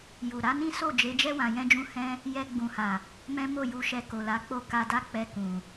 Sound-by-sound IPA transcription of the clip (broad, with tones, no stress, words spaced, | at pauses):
ju˨ ɾa˨˦nĩ˦ so˦˨d͡ʒe˨˦d͡ʒɛ˦ wã˧jɛ̃˦d͡ʒũ˦ hɛ̃˦ | jɛ˧ ɡ͡bũ˨ha˨ | mɛ̃˦mo˦˨ju˧ʃɛ˧ ko˨la˨˦k͡po˦ ka˧da˦k͡pɛ˧ kũ˨